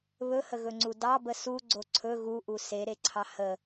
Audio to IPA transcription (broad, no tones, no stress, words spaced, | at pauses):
βɵhəɣɵŋ͡ǀu dɑbə suɡ͡ǀo ǀʰɵ ɣuʔu seɾeǀʰɑ hə